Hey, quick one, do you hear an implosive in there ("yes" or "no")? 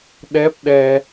yes